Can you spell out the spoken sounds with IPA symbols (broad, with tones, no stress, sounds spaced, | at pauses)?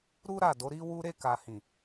ɾ u˦ ɾ a˦˨ d o˨˦ ɾ i˦ w u˦ ɾ e˦˨ k a˨ h ĩ˨